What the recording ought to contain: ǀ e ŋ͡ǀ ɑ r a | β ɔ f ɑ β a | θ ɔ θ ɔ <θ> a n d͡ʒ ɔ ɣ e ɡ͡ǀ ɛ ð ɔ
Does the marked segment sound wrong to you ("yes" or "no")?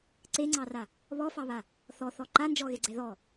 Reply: yes